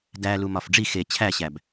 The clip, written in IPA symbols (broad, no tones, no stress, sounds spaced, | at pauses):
d æ l u m ɒ f ɖ͡ʐ i x e t͡ɕʰ æ ɕ æ b